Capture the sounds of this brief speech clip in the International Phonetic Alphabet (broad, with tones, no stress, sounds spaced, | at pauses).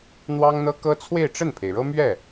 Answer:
n̪ w ɑ˥ ŋ n̪ ɤ˥ k ɤ˥ t͡sʰ w e˥˧ ɪ̯ ʈ͡ʂ ə˥˩ n pʰ e˩ ɪ̯ ɻ ɤ˥ m ɥ ɛ˥˩